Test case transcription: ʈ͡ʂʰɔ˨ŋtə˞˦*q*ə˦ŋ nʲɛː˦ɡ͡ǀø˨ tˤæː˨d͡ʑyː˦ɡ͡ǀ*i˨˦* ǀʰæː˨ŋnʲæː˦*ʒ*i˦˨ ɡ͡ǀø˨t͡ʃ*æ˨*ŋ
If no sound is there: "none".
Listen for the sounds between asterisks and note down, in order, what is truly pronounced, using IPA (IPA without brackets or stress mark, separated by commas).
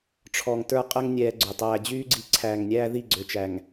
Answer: qʼ, i˨, ð, æ˨